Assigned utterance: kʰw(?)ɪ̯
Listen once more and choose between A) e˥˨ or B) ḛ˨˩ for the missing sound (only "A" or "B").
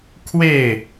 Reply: A